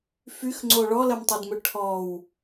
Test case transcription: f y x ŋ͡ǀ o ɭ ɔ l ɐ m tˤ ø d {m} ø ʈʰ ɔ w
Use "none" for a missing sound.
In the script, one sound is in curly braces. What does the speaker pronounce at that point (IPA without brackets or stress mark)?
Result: m